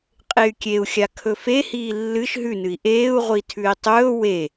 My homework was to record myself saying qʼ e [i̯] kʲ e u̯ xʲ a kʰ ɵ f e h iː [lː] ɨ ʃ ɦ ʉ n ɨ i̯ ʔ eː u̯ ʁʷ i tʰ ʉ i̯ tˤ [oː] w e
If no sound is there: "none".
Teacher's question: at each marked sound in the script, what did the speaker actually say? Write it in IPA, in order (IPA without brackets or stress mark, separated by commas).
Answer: y̯, lː, ɵː